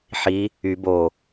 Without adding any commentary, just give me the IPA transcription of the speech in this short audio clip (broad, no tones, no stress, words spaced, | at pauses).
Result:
ħi | y bo